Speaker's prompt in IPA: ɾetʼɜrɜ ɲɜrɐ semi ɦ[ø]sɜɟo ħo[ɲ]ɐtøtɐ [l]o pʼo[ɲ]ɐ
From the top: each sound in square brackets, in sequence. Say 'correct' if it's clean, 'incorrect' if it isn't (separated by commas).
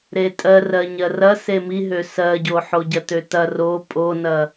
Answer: correct, incorrect, incorrect, incorrect